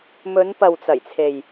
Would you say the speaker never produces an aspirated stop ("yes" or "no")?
no